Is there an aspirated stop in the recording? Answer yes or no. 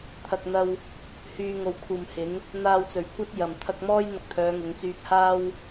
yes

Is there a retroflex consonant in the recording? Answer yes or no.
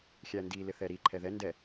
no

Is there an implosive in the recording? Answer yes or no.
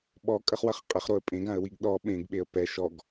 yes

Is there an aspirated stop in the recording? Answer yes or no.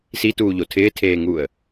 yes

